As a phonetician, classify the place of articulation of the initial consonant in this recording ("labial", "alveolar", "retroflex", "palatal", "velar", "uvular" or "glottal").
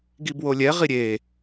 velar